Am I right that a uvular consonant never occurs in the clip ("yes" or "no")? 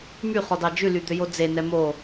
no